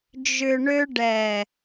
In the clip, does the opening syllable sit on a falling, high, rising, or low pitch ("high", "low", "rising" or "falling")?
low